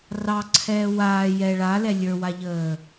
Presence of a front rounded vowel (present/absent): absent